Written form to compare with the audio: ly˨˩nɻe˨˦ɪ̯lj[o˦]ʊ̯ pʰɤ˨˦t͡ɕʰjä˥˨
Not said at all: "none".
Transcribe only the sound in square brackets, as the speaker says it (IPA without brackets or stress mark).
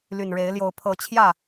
o˨˦